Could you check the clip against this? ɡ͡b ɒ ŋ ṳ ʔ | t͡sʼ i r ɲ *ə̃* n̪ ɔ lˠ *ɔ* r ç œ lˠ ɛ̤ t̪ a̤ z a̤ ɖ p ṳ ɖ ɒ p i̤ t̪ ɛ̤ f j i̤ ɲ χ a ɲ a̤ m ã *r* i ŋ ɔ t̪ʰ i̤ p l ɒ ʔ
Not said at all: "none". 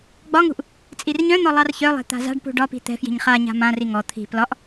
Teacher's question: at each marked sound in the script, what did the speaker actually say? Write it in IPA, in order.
œ̃, ɑ, r

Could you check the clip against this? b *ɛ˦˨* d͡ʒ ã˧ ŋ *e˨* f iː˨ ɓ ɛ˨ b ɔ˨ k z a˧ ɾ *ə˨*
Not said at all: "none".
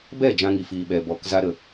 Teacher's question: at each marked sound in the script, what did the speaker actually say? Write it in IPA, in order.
ɛ˦˨, i˨, ə˨

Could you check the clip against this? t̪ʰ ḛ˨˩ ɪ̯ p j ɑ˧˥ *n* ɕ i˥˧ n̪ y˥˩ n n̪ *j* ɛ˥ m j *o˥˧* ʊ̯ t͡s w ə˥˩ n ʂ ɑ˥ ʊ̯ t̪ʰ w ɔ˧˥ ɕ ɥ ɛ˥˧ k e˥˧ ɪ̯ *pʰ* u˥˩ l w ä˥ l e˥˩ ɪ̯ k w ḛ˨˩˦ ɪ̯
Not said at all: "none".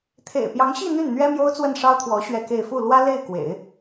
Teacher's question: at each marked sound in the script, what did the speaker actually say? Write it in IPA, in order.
ŋ, ɥ, o˥, f

